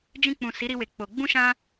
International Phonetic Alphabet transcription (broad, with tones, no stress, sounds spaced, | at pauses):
d͡ʒ ĩ˧ k͡p ũ˨ s i˨˦ ɾ i˧ w e˨ k͡p o˨ ɡ͡b ũ˧ ʃ ã˧